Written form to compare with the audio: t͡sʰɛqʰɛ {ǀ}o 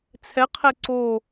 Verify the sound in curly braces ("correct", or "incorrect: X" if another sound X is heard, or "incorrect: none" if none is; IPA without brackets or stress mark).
correct